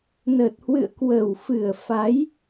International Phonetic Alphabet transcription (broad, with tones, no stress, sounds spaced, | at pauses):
n ə˨˩ t̚ h w ɨ̰˧˨ ə̯ k w ə˨˩ w f ɨ˨˩ ə̯ f a˨˦ j